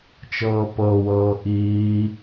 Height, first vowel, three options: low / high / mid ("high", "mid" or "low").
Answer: mid